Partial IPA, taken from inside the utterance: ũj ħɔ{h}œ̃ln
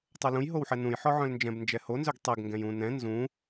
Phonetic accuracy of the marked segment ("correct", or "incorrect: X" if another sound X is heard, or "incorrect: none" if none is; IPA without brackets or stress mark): incorrect: ʕ